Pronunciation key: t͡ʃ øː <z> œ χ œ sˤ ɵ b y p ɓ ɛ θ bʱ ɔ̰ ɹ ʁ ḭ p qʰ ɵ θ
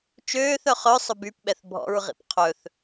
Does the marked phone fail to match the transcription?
yes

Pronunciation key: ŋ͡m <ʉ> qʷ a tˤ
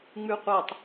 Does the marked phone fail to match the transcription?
no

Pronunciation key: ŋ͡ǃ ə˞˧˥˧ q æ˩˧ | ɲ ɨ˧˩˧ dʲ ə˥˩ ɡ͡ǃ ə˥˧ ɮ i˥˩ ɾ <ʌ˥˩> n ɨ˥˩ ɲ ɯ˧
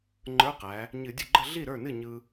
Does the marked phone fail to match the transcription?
yes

